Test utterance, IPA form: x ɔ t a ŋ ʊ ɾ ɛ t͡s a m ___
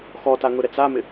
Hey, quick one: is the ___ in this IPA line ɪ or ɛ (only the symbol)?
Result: ɪ